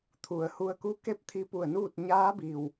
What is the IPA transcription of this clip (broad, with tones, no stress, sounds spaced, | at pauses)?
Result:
t̪ʰ u˩ ə̯ h u˧ ə̯ k u˧˥ k e˥˨ p̚ t̪ʰ i˧ p u˧˩ ə̯ n uː˥˨ t̚ ɲ aː˧˥ b i˩ w